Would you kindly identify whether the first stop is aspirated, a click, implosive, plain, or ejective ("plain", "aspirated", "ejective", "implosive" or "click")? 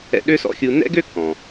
implosive